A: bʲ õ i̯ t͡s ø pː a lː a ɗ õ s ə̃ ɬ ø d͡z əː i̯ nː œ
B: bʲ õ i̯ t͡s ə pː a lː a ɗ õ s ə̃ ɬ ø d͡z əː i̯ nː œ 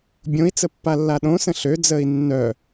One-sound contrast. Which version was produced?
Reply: B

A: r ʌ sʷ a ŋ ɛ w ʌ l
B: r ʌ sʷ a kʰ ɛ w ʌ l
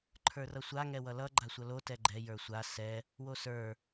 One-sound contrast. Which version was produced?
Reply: A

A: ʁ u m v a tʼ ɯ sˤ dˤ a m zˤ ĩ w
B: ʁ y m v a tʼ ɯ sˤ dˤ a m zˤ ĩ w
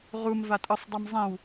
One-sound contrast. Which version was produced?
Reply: A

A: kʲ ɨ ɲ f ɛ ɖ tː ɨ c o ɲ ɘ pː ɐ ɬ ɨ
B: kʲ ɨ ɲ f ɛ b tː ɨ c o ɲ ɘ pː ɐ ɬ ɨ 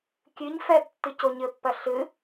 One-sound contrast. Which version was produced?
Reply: B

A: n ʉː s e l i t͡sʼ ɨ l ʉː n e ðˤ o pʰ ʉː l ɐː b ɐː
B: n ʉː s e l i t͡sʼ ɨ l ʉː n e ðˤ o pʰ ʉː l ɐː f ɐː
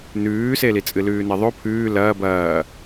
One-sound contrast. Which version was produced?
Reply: A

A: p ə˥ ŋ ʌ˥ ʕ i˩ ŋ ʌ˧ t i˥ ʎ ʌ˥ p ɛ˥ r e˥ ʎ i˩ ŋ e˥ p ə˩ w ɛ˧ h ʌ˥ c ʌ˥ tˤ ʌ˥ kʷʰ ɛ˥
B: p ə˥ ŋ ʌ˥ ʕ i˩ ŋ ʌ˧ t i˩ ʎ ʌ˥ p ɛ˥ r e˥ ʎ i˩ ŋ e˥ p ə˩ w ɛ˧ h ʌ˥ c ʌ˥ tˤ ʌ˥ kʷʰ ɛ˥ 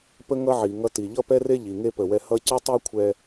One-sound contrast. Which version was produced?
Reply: B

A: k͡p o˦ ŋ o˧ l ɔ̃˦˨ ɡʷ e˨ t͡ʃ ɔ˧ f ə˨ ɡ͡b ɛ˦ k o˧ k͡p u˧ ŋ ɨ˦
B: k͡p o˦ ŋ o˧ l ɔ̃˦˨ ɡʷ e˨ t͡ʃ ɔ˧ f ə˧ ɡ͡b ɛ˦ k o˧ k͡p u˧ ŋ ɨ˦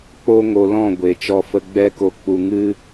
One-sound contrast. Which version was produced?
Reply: B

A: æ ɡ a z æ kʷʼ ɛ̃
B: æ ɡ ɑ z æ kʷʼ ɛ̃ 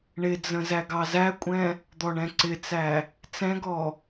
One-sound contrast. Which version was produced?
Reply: B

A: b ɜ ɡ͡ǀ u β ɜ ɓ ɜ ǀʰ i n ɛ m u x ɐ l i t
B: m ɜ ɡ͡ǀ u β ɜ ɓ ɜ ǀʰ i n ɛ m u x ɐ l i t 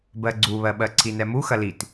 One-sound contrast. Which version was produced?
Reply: A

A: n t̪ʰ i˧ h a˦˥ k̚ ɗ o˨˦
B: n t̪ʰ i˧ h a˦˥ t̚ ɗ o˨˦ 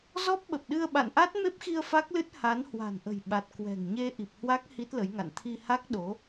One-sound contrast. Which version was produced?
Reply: A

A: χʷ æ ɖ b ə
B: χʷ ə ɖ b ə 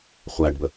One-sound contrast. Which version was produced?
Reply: A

